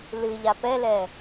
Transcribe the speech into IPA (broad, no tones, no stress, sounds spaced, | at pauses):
l ɨ ʎ a p ɛ l ɛ